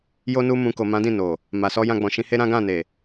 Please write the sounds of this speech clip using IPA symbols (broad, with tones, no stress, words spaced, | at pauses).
jo˦nu˦mũ˧ ko˨mã˨˦dĩ˦˨ no˨ | ma˨sɔ˧jã˧ɡ͡bɔ̃˨ ʃĩ˧he˦ɾã˦ ɡã˦˨ne˨